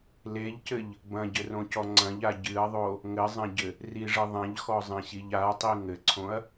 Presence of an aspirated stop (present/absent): present